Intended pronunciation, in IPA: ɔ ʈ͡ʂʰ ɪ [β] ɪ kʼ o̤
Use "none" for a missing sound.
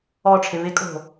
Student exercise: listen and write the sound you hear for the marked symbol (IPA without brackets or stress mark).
β